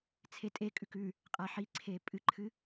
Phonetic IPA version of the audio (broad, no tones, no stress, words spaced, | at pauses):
t͡sʰetʼekʼʉk ʉ | qʼaħiǀʰe pʼɨǃʰɨ